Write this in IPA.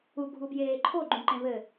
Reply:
uɡʱubjeː ǃʰoɡ͡ǃũǃẽ βɘ

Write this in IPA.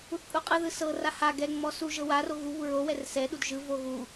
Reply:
uθpʼuqʼɯðɯ sɤra ha ɡɛŋ͡mɔ su ʒɤwaro ɣuβu ɹowɛr sɛɗud ʒɯvo ɣu

